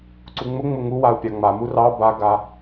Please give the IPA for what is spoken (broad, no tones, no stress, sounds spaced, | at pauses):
ǀ u ŋ͡m ʊ ŋ͡m ʊ ŋ u w a u̯ pʲ a ŋ͡m a m u r ɑ b a ɡ a